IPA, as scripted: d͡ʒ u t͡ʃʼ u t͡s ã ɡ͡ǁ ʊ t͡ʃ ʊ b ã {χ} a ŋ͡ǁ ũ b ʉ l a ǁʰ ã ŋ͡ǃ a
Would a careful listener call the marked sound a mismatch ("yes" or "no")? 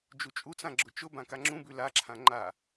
yes